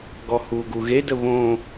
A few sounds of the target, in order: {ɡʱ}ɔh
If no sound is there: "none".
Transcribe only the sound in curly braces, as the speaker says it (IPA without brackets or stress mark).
ɡ